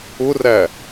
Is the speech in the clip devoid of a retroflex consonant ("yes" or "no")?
yes